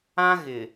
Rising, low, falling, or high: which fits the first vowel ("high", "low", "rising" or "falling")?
high